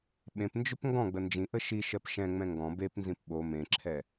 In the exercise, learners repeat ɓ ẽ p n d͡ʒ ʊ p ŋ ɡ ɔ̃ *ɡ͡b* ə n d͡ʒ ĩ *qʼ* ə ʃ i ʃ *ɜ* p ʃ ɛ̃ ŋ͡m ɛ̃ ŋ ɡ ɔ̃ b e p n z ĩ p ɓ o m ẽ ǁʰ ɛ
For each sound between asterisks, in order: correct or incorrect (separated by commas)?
correct, incorrect, correct